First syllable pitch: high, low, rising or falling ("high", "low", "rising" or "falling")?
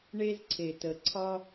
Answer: high